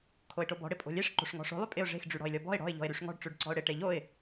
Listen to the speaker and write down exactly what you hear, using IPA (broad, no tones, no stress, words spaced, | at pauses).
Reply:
kʰoɪ̯ʈobɔ̤ ɽɪpʼo̤lʲeʂ ǃo̤ʂŋɔ̤ʂo̤ lˠypʼɪʊ̯ ʐe̤x ɖ͡ʐyɽɔ̤ɪ̯lʲɔbɔ̤ɪ̯ ɽɔ̤ɪ̯ ʎɔ̤ɪ̯ɾyʂŋɔ̤ɖ ʈ͡ʂʉɖǀɔ̤ʊ̯ɽɪ ʈeʎoɪ̯